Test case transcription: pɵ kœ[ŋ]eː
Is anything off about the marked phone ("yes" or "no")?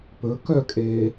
yes